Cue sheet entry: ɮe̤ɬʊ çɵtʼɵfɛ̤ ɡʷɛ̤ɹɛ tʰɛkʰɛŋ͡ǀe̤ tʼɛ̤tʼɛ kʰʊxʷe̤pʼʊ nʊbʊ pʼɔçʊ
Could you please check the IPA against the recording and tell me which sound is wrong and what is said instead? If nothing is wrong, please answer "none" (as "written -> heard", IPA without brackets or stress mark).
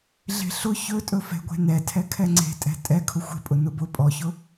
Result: ɹ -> n